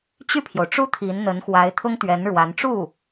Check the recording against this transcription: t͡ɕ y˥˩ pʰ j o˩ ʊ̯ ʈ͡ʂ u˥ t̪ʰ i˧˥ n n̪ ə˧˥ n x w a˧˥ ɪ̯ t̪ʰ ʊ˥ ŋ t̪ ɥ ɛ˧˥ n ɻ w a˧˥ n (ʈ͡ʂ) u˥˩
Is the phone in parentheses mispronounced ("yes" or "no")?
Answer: no